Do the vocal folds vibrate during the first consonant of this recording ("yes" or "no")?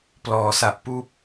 no